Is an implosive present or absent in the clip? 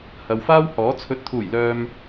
absent